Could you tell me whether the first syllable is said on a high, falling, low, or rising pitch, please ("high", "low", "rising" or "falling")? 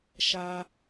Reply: high